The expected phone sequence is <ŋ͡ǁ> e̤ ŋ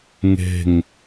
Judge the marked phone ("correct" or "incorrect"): incorrect